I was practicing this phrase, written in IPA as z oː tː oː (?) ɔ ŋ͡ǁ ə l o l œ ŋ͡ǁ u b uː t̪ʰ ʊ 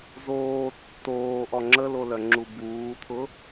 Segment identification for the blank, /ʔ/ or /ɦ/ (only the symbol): ʔ